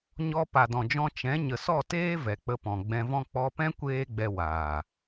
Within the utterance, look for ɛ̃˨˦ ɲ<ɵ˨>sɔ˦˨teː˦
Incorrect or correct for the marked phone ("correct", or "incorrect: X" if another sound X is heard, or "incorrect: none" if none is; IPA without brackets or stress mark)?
incorrect: ə˨